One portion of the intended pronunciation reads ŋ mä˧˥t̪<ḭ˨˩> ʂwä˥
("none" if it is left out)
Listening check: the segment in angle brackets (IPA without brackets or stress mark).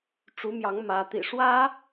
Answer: ḭ˨˩